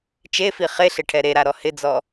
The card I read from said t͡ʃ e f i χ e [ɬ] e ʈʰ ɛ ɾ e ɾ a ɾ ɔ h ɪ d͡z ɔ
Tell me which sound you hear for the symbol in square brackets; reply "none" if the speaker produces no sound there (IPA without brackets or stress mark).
ɬ